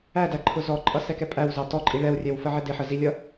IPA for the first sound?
æ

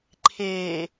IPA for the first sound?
ǃʰ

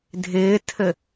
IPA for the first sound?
dʱ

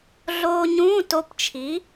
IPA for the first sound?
ɮ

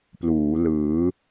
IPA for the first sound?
p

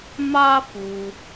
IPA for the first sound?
m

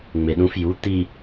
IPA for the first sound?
ŋ͡m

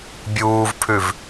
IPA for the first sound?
bʲ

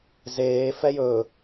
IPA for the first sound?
z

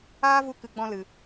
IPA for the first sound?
aː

